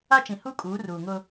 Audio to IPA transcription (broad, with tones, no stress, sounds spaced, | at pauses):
a˦ t͡ʃ ĩ˨ h u˦ kʼ uː˨˦ r uː˨ ŋ ʊ˦